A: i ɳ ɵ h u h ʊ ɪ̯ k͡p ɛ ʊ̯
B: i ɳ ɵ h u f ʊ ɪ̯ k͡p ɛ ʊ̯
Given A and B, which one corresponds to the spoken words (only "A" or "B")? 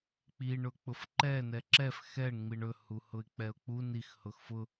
A